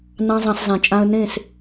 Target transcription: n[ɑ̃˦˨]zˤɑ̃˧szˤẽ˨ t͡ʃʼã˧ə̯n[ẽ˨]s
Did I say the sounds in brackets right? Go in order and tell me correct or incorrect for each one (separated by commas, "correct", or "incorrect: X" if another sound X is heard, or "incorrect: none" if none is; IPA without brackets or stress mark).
incorrect: ɑ̃˦, incorrect: ẽ˦˨